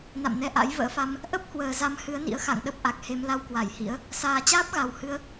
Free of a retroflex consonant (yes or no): yes